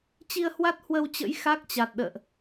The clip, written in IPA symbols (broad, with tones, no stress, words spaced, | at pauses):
t͡ɕi˧ə̯hwa˦˥t̚ hwə˧wt͡ɕə̰˧˥j xa˦˥k̚t͡ɕa˨˩t̚ɗə̰ː˧˨ʔ